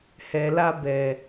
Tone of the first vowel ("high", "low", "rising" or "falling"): low